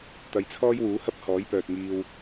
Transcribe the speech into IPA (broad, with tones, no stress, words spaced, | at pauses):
t̪ɐ˨jt͡sʰɔː˥jwuː˨˥hɐ˥p̚ hɔː˨˥jpœː˨t̚ŋiː˧w